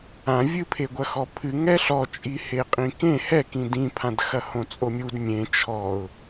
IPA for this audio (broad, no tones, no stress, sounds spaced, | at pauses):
ã vʲ ɨ pʰ e ɡʷ ɐ x ɔ pʰ ɨ ŋ ɛ ɬ ɔ t͡ʃʼ i h e qʼ ĩ k ẽ h ɛ k ĩ d ĩ pʰ ã d x ɐ h õ t͡sʼ o mʲ u d mʲ ẽ t͡ʃʰ ɔ ʊ̯